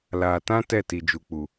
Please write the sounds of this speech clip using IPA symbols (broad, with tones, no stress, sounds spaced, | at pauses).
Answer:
l aː˨ t ã˦ t ɛ˦˨ t i˨ d͡ʒ u˨ k͡p u˨